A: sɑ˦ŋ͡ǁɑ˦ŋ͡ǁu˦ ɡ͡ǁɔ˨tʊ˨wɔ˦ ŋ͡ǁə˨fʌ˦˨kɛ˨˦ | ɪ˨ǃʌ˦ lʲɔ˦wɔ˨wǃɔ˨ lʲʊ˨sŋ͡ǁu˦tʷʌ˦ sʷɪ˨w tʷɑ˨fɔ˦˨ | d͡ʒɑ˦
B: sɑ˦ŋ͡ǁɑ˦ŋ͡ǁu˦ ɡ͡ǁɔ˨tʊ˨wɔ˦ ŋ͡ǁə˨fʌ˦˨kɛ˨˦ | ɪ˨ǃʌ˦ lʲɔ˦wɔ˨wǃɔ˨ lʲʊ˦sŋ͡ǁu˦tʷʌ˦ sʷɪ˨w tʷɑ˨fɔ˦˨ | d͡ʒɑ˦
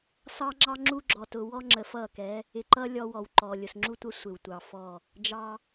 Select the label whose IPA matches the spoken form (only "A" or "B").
A